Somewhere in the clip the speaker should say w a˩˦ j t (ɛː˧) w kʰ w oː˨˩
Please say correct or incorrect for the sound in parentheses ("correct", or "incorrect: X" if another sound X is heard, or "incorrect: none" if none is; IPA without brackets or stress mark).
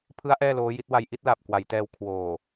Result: correct